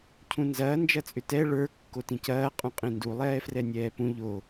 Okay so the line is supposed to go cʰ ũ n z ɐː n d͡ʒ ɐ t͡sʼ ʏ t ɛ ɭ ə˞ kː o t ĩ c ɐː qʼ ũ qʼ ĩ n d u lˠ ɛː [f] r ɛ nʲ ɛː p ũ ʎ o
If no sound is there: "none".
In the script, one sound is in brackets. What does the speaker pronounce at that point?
f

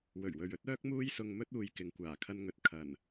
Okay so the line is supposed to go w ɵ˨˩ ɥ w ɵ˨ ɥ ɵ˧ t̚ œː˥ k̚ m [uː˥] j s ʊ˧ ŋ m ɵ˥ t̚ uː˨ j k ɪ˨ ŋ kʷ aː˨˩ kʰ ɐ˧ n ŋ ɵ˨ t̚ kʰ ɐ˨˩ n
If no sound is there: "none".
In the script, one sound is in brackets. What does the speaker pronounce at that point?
uː˥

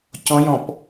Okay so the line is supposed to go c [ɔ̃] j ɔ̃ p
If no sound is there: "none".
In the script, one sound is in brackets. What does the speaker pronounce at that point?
ɔ̃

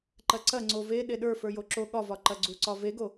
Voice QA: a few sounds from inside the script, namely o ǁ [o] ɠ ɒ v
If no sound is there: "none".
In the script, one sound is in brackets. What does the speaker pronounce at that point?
o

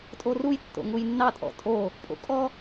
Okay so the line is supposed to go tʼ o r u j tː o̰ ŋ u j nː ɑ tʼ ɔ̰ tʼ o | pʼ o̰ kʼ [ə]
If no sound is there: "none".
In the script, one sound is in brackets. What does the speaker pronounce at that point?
ɔ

